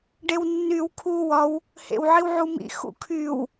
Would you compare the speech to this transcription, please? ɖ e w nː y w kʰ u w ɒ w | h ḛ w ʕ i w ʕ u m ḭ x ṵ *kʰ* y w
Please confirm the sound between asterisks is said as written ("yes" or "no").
yes